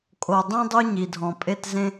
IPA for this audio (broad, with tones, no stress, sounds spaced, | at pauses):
kʼ o˨ dˤ ẽ˦ dˤ o˦ ɲ i˨ dʱ ɔ̃˨ pʼ e˦˨ t z ẽ˦